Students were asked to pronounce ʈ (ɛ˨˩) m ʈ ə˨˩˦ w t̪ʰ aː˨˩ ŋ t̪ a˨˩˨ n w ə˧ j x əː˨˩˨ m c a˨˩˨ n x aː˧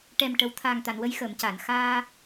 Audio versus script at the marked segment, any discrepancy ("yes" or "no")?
no